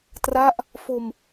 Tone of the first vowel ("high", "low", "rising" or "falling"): falling